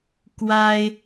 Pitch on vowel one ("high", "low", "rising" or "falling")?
high